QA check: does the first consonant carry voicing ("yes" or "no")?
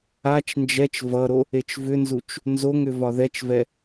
no